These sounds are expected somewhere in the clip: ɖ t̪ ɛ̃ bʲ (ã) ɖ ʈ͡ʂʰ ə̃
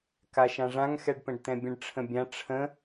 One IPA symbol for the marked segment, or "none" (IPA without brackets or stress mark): ə̃